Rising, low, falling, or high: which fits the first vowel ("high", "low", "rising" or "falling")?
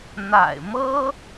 low